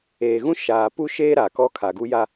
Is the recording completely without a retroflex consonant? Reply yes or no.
yes